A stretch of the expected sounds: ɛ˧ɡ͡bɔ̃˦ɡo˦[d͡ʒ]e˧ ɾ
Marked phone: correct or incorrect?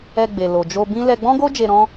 correct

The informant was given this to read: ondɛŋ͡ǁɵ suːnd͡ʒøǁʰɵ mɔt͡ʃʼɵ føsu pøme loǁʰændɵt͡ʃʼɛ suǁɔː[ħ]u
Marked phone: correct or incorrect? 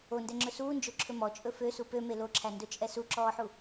correct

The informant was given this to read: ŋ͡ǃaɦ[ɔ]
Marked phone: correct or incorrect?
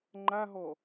correct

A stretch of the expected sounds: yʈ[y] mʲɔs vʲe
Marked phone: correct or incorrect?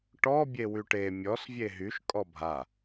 incorrect: e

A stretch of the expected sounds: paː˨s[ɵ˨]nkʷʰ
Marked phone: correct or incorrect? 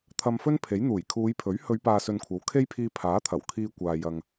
correct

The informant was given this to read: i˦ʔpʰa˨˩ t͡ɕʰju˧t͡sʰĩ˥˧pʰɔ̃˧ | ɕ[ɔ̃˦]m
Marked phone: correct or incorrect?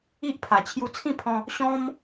correct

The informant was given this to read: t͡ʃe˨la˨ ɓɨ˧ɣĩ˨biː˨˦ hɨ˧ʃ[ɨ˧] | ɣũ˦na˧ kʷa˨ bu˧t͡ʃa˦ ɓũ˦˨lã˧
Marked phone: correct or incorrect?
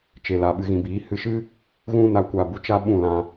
incorrect: ɨ˦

